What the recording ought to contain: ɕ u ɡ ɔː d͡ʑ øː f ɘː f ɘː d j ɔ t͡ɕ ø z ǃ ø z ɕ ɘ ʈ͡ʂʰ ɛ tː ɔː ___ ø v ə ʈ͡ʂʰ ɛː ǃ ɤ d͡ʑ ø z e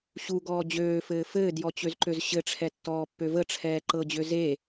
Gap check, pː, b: pː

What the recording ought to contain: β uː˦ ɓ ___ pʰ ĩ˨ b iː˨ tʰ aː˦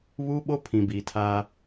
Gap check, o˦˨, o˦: o˦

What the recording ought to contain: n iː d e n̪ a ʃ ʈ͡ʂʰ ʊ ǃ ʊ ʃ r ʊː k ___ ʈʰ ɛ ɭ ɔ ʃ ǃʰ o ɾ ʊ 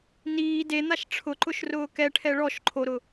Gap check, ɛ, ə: ɛ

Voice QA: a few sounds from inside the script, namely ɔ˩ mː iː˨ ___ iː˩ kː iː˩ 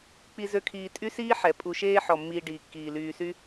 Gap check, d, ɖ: ɖ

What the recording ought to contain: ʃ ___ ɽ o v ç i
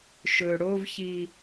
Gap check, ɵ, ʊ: ɵ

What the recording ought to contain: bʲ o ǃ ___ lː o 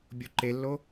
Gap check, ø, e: e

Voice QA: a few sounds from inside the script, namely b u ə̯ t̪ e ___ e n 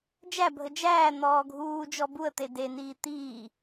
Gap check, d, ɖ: d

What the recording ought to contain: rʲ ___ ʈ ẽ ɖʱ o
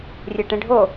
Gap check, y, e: e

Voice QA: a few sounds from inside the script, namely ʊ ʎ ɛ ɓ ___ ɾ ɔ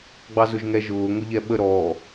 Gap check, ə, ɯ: ə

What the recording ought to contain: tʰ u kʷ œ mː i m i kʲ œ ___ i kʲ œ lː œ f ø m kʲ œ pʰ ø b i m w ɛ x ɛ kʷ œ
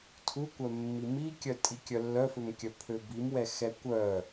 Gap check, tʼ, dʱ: tʼ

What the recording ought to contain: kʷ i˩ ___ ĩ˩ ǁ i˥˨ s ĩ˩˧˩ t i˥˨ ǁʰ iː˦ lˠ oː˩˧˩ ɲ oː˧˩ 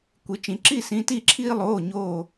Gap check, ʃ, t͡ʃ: t͡ʃ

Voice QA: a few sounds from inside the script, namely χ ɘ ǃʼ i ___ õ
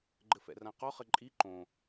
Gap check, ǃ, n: ǃ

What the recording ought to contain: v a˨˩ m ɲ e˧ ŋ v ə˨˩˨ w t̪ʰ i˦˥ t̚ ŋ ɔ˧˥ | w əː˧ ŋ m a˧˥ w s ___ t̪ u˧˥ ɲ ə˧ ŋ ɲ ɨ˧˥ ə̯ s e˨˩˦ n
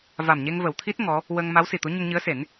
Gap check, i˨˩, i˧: i˨˩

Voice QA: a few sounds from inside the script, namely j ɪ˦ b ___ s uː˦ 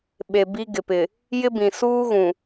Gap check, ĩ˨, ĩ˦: ĩ˨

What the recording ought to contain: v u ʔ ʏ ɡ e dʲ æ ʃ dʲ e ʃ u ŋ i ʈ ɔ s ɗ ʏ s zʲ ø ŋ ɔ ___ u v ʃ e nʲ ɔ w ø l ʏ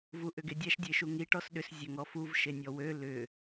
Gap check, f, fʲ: f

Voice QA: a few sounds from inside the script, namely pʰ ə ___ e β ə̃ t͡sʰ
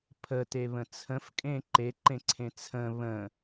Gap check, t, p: t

